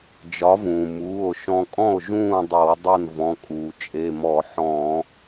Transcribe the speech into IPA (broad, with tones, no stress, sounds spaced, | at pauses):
d͡ʒ ɒ˨˥ v ũː˩ m uː˩˧˩ o̯ ʃ ɔ̃˧ kʼ ɔ̃˥˨ o̯ ʒ ũː˥˨ dˤ ɤ˧˩˧ w dˤ ɤ˥˨ n v ɔ̃˩˧˩ kʼ uː˩ t͡ʃʼ e˩˧˩ m ɔ˧˩˧ ħ ɔ̃ː˧˩˧